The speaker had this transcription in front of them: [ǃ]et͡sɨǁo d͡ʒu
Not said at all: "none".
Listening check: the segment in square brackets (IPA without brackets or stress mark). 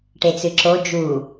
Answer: ʈ